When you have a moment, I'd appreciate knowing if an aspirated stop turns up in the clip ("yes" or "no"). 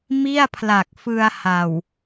yes